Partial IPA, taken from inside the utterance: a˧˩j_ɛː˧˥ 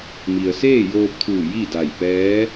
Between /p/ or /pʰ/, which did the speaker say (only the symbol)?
p